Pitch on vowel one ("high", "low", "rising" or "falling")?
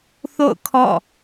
falling